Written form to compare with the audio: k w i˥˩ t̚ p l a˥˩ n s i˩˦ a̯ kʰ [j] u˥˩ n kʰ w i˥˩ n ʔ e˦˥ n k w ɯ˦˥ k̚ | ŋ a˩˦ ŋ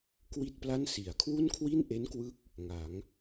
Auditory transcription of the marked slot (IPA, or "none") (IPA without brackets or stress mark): w